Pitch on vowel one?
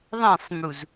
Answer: falling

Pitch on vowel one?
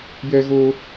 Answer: high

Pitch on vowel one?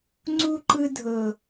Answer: high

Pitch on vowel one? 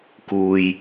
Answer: low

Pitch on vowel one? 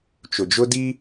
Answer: low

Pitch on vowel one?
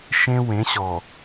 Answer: high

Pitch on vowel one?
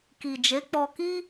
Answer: low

